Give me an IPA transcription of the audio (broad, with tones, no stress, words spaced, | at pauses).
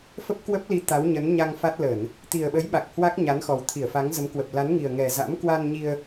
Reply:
fə˦˥p̚kwə˦˥p̚ li˨˦ t̪a˨˦wɲə˨˦nɲa˧ŋfa˦˥t̚ lə˧˩˨n | t̪i˨˩ə̯ɓə˨˦jɓa˨˩k̚ hwa˦˥k̚ɲa˨˦nxɔ˨˩w t̪ʰi˧˩ə̯fa˨˦ŋzə˨˦m kwə˨˩p̚la˨˦nŋi˨˩ə̯ ŋɛ˨˩ za̰˧˥m kwa˧nɲi˧ə̯